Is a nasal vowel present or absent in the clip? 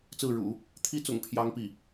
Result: absent